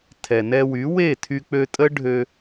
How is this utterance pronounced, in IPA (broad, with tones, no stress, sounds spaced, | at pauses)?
tʰ ɛ˨ n ɛ˧ w y˨˦ w e˦˨ tʰ y˧ k͡p ø˧ tʼ ə˦ ɖʱ ø˧